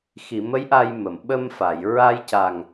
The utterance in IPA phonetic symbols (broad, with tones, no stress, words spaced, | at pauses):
xi˨˩˨mə˧˥j ʔa˧jmə˨˩˨m ɓə˧mfa˨˩˨j ɹa˧jca˨˩ŋ